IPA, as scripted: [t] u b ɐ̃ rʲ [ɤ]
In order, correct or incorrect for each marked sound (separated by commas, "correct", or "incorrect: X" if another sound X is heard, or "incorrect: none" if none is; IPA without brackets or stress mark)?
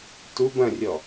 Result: correct, incorrect: ɔ